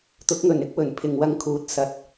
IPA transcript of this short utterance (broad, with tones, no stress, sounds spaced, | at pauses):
t̪ ʊ˨˥ k̚ ŋ ɵ˨˩ n ɪ˥ k̚ w ɵ˨˩ n pʰ ɪ˨ ŋ w ɐ˧ ŋ kʰ uː˨ t̚ s ɐ˨˥ t̚